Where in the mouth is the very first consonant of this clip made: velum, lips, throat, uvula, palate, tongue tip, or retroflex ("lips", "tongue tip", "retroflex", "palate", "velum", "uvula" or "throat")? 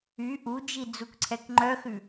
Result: throat